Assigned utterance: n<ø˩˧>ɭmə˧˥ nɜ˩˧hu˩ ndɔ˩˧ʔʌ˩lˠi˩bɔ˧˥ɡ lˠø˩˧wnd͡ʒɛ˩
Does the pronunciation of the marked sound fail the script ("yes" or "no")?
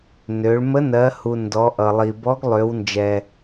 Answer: no